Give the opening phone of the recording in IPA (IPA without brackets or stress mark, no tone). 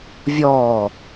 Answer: vʲ